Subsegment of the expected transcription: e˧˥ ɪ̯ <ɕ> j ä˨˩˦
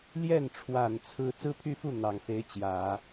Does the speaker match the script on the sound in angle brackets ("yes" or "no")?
no